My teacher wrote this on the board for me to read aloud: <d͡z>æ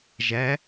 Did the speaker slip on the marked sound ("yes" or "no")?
yes